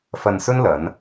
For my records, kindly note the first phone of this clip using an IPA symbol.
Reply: f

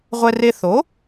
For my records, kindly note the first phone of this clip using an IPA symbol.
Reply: ʁʷ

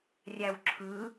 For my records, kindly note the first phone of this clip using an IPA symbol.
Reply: rʲ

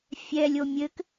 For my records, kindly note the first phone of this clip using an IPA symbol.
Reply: fʲ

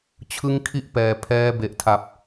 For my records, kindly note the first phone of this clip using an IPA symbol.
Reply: t͡ɕʰ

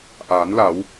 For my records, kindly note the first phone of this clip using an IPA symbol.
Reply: ʔ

